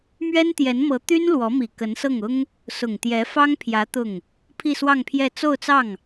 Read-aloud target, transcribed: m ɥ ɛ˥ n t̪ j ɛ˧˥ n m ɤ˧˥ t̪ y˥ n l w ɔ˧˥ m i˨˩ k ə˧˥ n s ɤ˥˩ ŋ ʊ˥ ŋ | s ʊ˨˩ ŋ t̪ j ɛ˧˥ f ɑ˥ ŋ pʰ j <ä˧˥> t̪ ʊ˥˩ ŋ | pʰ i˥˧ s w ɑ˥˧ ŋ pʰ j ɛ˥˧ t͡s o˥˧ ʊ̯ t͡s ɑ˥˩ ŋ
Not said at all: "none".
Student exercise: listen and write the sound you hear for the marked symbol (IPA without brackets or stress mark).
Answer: ä˧˥